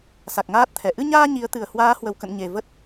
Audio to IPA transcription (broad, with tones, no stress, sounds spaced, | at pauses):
s a˨˩ k̚ ŋ aː˦˥ t̚ t̪ʰ ɛ˧˩ ʔ ɨ˧ ɲ aː˧ ɲ i˨˦ ə̯ t̪ ɨ˨˩ ə̯ h w aː˨˦ h w ə˧˩ w k ə̰˧˨ n ɲ e˨˩ v ə˦˥ t̚